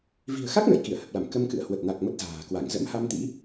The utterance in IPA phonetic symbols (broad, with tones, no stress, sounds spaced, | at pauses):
v i̤˨˩ ə̯ x a˦˥ k̚ n ə̰ː˧˨ j k i˧˩ ə̯ h ə˨˩ p̚ l a˧˩ m k ə˧ m k ɨ̰˧˨ ə̯ h w ə˨˩ t̚ n a˨˩ k̚ m ə˦˥ t̚ z a̤ː˨˩ k w a˧˩ ŋ z ə̰˧˥ m h a˧ m t̪ ḭ˧˥